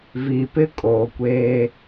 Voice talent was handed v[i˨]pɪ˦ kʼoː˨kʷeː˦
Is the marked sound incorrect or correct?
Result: correct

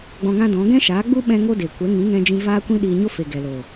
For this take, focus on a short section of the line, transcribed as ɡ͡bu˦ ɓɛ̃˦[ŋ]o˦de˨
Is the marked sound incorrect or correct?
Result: correct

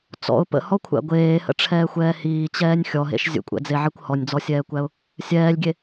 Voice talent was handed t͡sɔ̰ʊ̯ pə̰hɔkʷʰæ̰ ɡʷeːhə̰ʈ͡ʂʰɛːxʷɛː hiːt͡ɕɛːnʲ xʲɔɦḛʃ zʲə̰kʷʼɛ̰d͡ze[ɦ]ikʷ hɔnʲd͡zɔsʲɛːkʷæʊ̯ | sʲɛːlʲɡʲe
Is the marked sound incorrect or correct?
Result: incorrect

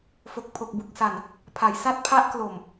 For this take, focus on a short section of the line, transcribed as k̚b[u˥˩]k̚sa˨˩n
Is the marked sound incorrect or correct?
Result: incorrect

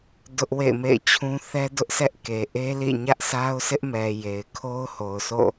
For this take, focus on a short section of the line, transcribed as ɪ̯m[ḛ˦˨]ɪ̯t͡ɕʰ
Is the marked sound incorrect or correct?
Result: correct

